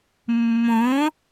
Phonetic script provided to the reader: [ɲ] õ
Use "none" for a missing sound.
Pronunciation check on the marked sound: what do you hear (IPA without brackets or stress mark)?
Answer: mː